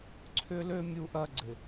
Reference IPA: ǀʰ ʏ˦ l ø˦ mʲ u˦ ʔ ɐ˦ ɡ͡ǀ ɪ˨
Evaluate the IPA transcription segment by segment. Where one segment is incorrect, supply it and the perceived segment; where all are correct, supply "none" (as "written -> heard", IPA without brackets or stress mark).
none